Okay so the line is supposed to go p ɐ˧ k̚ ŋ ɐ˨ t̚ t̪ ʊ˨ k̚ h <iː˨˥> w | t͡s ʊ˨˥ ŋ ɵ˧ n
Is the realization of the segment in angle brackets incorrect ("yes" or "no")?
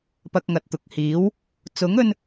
no